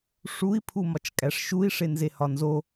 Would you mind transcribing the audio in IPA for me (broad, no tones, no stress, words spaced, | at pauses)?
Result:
ʂui̯ pʰumɒt͡ʃkʼæʂʃui̯ ʂenzehɒnzo